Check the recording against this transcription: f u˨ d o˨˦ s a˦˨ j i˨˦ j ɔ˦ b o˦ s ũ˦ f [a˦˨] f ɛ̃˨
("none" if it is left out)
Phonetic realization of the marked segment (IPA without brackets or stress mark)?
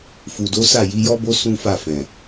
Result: a˦˨